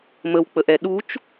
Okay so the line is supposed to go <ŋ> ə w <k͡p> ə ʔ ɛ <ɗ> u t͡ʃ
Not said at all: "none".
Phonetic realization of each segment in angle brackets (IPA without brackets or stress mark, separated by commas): m, k͡p, ɗ